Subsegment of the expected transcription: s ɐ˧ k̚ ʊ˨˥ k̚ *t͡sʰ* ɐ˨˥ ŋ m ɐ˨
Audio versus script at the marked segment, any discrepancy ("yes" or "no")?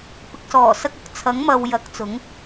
no